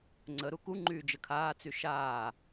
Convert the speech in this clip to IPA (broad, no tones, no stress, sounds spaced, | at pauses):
ŋ͡ǀ ə ɾ u k u ŋ͡ǃ yː d͡ʒ ə kʰ aː t͡s y ʃ aː